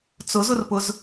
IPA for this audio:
t͡sʊzʊrpʊz

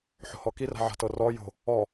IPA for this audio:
ħo̤hɔkira̤ ʕa̤tɤrɔ jo̤ | ɔ

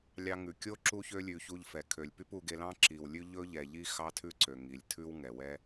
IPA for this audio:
lʲɑ˦ ŋʉ˨kʲo˦ ǁu˦çø˦lʲʉ˧ çu˧ʎfɛ˨ kʰø˨lʲ py˦pu˧ɡe˧lɑ̃˦ ǁi˨wlʲʉ˦ ʎɵ˦ ʎɛ˨ʎi˦ xɑ˦tʰʉ˦ǀø˨ ŋi˨lʲtʰʉ˦w ŋɛ˨wɛ˦

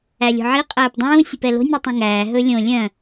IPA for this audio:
ælʲo̤ʕi qʼæːpdˤũː sʲɵpɛlo̤nʲ ʉtˤĩŋæː ɦɵlʲõ lʲœ̃

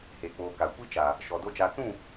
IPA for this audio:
he˨k͡poː˨ ka˨ kʷi˦t͡ʃa˨ | ʃɔ˨do˦ t͡ʃaː˨t͡sũ˦˨

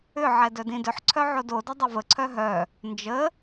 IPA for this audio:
ʏ ʕɛdœdĩdʏħ ǀʰœʕodo dʊdˤʊvə ǀʰœɦœ | nd͡ʒə

